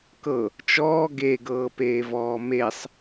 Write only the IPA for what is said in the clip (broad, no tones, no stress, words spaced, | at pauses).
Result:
kɤ | t͡ʃɔː ɡeɡɤːpeːvɔː mesˤ